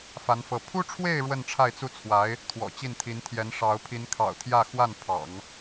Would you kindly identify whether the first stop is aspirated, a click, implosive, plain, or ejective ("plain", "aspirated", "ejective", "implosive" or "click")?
aspirated